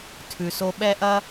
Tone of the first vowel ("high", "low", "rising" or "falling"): low